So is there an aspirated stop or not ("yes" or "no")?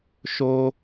no